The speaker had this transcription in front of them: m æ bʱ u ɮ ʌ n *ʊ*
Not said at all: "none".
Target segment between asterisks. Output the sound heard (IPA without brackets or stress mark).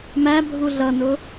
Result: ʊ